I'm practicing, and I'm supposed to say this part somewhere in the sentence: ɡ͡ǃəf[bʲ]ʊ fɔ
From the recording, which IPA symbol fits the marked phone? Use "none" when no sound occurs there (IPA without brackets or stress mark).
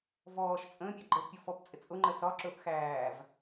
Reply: pʲ